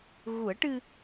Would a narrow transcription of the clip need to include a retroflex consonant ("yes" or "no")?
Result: yes